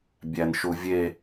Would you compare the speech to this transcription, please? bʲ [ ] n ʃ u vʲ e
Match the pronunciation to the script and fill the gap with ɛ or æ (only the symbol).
æ